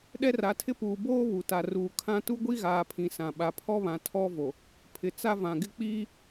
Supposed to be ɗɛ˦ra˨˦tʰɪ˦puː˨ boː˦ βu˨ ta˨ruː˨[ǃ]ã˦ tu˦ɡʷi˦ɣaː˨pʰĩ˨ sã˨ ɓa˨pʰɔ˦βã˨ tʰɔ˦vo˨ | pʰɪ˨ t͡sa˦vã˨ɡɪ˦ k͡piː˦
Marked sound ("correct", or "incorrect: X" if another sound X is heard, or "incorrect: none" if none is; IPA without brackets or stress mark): incorrect: kʰ